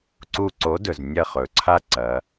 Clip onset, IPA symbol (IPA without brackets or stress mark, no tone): ǀ